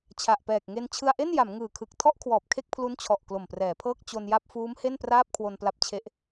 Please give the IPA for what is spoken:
t͡ɕʰa˨˩ʔpɛː˨˩k̚ŋe˧n t͡ɕʰɯ˧a̯ʔe˥˩nja˩˦m ŋɯː˨˩kʰɯ˨˩k̚ tʰɔ˥˩ʔkʰwɔː˨˩p̚ kʰe˥˩k̚pʰlu˦˥nt͡ɕʰɔ˨˩ʔ klo˨˩mprɛː˩˦pʰɤː˥˩k̚ t͡ɕo˧nja˥˩p̚ fuː˦˥mhe˥˩n praː˥˩p̚kʰwo˧npla˦˥p̚t͡ɕʰe˦˥ʔ

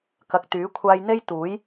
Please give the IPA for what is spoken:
kɐ˨k̚ t̪yː˨˥kʷʰaː˧j n̪e˥j t̪uː˨˥j

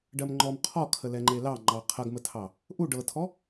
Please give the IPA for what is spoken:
ɖɜmŋ͡ǃɔm qʰɔkʰə lɛŋ͡ǃelɑ ŋ͡ǃɑqʰɐɡmətʰɑ | ʔu ɖɤtʰɔ

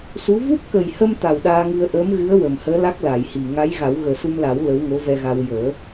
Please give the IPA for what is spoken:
su˧˥ vu˦˥p̚kə˨˩jhə˧m t̪a˨˩wɗaː˧ŋɨ˧ə̯ ʔəː˧˥mɣɨ˧˥ə̯ wə˨˩m həː˧˥la˦˥k̚ la˨˩˨jhi˨˩ ŋa˧˥jɣa˨˩˦w ɣəː˨˩su˧mla˨˩˦w lə˧˥w ŋo˧˥vɛ˧ɣa˧w jəː˨˩˦

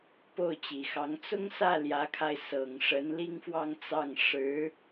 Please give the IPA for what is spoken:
po˥˩ʊ̯t͡ɕi˨˩xɑ˧˥ŋ t͡sʊ˥ŋsä˥˩ ljä˧˥kʰa˧ɪ̯ sɤ˨˩ŋʂə˧˥n li˥ŋfwɑ˥˧ŋt͡sɑ˥˩ŋ ʂɻ̩˧˥

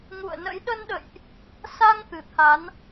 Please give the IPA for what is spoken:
ŋṵ˧˨ə̯nə̰˧˥j ɗə˧nɗə̰˧˨jʔ | sa˧ŋ t̪ɨ˧˩t̪ʰa˨˦n

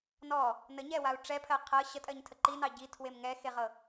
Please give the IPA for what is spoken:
nɔ | nəɲɛwau̯ ʈ͡ʂɛpʰɜ qʰɤ ɕətʼɜɲtʰə ǃinɑ ɟitʰwem ŋɛxeʁɤ

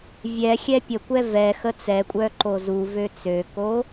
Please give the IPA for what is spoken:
vʲɛxʲɛ pʲəkʷɛ vɛxə t͡sɛkʷʼœ ǃozuvø t͡søko

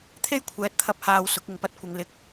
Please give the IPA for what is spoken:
t̪ʰe˥jkʷʰɛː˨˥t̚t̪ʰɐ˧p̚haː˨w sʊ˨˥k̚ɪ˨ŋpɐ˥t̚kʷɪ˨˧ŋ lɪ˨˥k̚

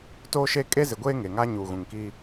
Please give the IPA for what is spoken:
toː˦ʃe˦ kʼe˦zɪ˨ɡʷeː˦ ŋe˨ŋa˦ ɲuː˨ɣũ˨ŋkiː˦

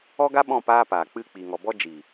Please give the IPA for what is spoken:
ɔ˦ɡa˦ɓɔ̃˦˨ paː˦paː˨ k͡pɨ˦˨k͡pi˨ŋɔ˨ bɔ˦d͡ʒi˨

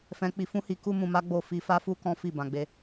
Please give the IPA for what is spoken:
fɛ̃˧k͡pi˧ fũ˦hi˧ ku˦mũ˧ma˦ɡ͡bo˦˨ fi˧fa˦fu˦ kɔ̃˦fi˦˨ bã˧ɡ͡be˧

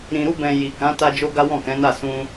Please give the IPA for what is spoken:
ɾĩ˨ɾu˧bɛ̃˨ ji˨kã˨˦ ta˧d͡ʒo˧ ɡa˦wɔ̃˦˨kɛ̃˨˦na˦˨ sũ˧

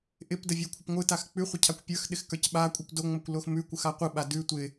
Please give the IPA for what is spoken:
ʔɪpdə vʲə˞kʷʰɪpŋʷɯtax k͡pʉχʷə cʰakʷpʲə˞xɗɪx kə˞cɓakʷʼɯp doŋ͡mokʷ loxmʉkʷɯx aqʷɯɓa dʉ tʷɪ

